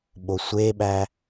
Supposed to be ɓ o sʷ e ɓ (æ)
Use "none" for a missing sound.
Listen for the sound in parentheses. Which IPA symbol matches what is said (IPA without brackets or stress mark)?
æ